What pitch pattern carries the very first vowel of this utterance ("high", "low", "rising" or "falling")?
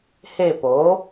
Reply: falling